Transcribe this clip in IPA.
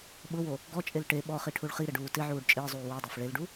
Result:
ɓʊwo | ɡɔt͡ʃʼel ʈe ɓɔχi ʈʰuɭχiɾɪ ɖuːtɪʕuːɖ t͡ʃʼɪːzˤuː widˤaf ɭelɖu

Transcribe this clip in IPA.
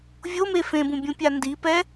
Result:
vʲome fẽbũbʲũpʲa ndipɛ

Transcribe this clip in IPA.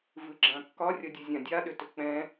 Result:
vɨɡ͡ǁãkːɒ rʲʌdʲɨzʲãdʲa ɗʏtʏk͡pɛ̃

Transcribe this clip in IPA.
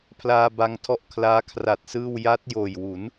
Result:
pʰlaː˧ba˧ŋtʰɔ˦˥ʔ kʰlaː˦˥kʰra˨˩t̚sɯː˥˩w ja˦˥t̚joː˨˩jwu˩˦n

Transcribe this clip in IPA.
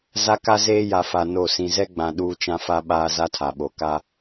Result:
za˦ka˦ zeː˦ja˨fa˨ no˦˨ sĩ˨zɛ˦ɡ͡bã˨ ɗuː˦t͡ʃã˦fa˦ ɓaː˦za˦tʰa˨ɓo˨ ka˦

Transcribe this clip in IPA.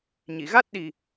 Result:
ɲi˨˩˨ɣa˦˥t̚ɗi˨˩

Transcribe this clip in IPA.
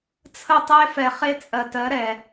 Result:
t͡sʰə˦˨tˤe˦fɛ˨ χe˦t͡sʼɜ˨tɜ˨˦ ɾɛ˨

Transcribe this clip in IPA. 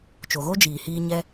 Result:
t͡ʃo˨ɣo˦d͡ʒiː˨hiː˧ ɲɛ˧

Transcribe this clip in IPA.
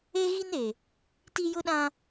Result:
e˦ɣi˦n e˨ | ti˦jʊ˦ɗã˦

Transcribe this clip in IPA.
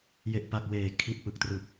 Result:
je˨˩ʔpa˨˩k̚ weː˨˩ kʰi˨˩t̚pɯ˨˩k̚trɯ˨˩k̚

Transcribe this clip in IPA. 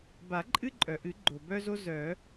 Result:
ba˨˩˦ǃʼɨ˦ǃʼœ˩ʔɨ˨˩˦ ɡ͡ǃo˩ bœ˦zo˦zœ˨˩˦

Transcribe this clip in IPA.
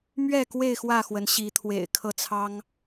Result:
mɥɛ˥˨kwe˥˨ɪ̯ xwä˥˨xwə˨˦nɕi˨˦t̪ʰwḛ˨˩ɪ̯ kʰɤ˥˨t͡sʰɑ˦ŋ

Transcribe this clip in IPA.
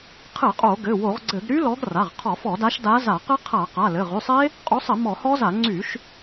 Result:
qʰɘ˧˩˧ qʼo˧˩˧ɡɘ˩˧˩wo˧˩˧ʁɡ͡ǀɘ˧˩˧ɡ ɾy˦˥lɔ˨˦ɡra˩˧˩ʁqʰɔ˧˩˧ fɔ˧˩˧da˨˦ʃ da˨˦ za˧˩˧qɘ˦˥ qʰa˧˩˧qa˩˧˩lɘ˩˧˩ ʁy˩˧˩sˤe˦˥ | qʼo˨˦sˤɘ˧˩˧ mɔ˧˩˧hɔ˦˥za˧˩˧ ŋ͡ǀy˧˩˧ʃ

